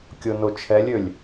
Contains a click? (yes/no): no